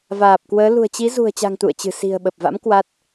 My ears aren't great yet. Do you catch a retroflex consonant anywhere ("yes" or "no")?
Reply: no